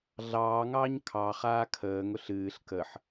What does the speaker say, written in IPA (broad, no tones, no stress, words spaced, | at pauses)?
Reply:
ɮɑːŋɑːɲ kʰɑχaː kʰəːŋʊɬ ɨːɬ kəħ